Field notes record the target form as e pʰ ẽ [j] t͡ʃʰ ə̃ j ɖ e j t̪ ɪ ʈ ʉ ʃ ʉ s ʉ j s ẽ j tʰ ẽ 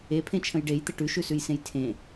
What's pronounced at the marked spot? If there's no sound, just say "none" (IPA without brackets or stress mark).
none